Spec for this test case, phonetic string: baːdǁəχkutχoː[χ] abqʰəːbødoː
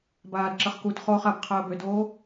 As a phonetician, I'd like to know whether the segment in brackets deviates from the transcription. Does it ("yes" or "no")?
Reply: no